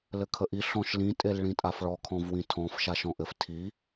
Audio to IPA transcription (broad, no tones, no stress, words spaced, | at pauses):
lɘkʰəʔi ɬɔ̃ʃlĩ tʼelɭĩtʼafɭɔ kʰɔ̃vwĩtʰɔ̃f ʃaʃɔ̃ʔɘf tʰi